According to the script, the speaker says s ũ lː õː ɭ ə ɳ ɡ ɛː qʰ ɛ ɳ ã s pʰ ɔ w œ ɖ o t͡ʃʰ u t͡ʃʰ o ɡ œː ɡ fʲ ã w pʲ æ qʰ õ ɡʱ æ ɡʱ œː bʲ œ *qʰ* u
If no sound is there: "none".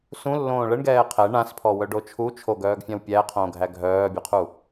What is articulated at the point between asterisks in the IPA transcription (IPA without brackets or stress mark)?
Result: qʰ